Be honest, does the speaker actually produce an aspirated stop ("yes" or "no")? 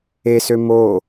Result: no